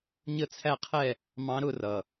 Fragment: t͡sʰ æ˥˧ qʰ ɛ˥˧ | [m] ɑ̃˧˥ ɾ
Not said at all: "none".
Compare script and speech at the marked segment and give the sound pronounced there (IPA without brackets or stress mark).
m